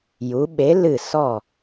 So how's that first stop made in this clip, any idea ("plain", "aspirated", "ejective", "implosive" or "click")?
implosive